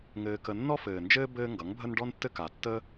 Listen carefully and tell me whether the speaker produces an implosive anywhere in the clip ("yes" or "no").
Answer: no